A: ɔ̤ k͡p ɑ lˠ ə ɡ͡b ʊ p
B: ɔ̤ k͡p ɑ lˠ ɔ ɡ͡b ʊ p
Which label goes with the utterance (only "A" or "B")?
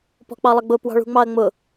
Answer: A